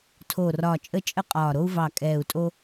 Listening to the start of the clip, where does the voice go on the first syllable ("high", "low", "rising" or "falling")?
low